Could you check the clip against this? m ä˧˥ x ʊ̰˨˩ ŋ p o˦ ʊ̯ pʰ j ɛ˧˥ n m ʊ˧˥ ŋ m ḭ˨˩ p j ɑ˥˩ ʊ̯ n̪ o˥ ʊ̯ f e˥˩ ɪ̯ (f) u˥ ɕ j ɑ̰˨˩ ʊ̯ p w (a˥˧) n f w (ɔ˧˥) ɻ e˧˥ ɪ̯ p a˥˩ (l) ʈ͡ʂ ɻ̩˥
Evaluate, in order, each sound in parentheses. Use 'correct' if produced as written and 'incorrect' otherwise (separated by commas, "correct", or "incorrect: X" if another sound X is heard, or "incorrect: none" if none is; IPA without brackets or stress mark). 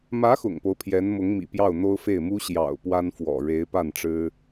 incorrect: m, incorrect: a˥, incorrect: ɔ̰˨˩, incorrect: n